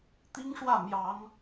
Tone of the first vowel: high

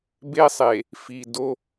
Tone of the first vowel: high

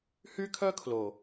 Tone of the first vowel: high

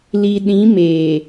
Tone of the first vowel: low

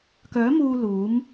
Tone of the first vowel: rising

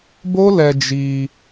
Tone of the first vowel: high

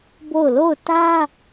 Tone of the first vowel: falling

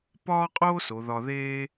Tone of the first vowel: high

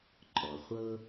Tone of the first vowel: low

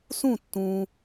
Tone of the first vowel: falling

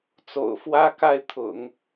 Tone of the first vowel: low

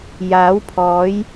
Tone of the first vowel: rising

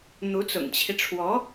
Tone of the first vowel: rising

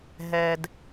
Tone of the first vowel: low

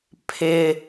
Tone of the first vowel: high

